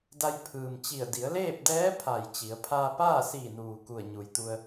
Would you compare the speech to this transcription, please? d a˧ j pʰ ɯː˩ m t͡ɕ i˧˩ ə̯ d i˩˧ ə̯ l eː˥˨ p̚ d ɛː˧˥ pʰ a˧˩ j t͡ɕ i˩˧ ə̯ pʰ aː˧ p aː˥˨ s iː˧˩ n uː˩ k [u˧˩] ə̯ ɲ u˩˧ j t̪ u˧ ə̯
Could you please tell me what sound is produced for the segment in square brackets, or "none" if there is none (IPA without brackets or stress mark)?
u˧˩